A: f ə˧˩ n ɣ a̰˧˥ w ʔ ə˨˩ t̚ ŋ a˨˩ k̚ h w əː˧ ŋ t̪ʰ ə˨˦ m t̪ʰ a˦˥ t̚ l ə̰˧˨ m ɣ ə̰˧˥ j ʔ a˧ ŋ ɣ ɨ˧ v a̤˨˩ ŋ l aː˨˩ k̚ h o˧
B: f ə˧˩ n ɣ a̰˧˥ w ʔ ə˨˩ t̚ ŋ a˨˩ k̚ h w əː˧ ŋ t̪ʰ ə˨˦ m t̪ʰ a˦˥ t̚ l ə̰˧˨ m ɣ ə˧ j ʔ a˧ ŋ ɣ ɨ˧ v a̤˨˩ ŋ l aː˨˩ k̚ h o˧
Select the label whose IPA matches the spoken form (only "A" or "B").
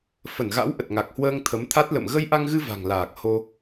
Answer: B